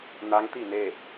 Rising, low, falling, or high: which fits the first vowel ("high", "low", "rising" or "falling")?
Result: rising